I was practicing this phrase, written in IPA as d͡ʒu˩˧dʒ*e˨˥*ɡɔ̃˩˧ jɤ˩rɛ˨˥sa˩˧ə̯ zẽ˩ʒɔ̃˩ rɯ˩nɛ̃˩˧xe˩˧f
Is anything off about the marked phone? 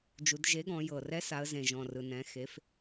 no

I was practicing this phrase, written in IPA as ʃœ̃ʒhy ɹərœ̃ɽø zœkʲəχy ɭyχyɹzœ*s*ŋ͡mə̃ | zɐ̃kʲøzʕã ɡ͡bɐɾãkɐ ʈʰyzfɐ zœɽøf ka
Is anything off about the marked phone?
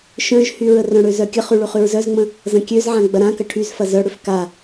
yes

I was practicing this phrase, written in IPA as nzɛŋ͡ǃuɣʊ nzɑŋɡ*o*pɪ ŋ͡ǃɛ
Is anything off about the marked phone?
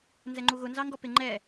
yes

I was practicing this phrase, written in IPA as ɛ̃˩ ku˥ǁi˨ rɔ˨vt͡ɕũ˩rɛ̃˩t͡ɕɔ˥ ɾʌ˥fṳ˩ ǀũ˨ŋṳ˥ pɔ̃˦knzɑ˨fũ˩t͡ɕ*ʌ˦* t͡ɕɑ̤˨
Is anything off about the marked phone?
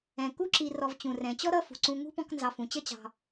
yes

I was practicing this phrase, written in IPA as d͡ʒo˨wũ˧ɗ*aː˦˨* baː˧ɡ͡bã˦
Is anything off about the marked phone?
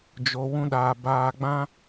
yes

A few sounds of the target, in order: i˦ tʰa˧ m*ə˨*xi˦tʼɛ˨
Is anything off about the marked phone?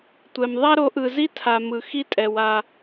yes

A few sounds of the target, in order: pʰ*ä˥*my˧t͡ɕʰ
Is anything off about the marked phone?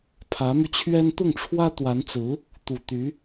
yes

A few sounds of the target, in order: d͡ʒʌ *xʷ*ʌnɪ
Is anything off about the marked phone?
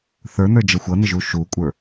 no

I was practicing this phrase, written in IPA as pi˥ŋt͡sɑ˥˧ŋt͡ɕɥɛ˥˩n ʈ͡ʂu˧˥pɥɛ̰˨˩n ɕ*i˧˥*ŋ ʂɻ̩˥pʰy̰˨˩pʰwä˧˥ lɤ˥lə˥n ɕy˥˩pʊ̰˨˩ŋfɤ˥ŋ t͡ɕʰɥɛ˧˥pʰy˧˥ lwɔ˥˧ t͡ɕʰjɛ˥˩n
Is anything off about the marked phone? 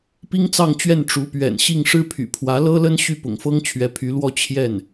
yes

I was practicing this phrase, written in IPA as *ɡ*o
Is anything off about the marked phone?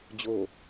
yes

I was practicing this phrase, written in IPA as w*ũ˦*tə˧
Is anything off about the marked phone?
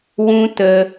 no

